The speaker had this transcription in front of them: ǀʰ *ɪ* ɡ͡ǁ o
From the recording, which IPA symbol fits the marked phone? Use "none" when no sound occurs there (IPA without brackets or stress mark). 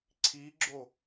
i